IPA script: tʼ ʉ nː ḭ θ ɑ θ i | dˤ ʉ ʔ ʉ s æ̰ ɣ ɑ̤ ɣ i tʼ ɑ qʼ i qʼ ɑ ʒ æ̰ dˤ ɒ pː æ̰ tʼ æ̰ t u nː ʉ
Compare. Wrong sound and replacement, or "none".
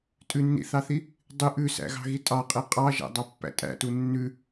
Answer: ɒ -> ɑ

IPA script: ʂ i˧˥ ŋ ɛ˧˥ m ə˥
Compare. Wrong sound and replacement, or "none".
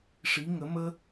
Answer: ɛ˧˥ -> ə˧˥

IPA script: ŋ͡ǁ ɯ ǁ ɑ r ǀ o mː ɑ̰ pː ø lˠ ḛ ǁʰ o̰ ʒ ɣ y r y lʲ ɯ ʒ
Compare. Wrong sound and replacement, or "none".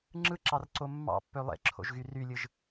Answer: none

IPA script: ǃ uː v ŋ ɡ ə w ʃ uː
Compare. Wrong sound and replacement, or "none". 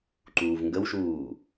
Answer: none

